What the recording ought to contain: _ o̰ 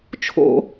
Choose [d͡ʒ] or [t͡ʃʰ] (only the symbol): t͡ʃʰ